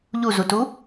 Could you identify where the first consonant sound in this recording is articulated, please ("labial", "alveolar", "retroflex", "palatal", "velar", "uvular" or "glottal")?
palatal